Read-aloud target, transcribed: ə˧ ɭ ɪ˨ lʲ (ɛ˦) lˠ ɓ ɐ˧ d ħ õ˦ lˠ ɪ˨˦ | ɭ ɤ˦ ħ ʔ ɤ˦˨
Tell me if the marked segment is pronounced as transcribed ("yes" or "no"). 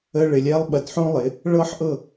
yes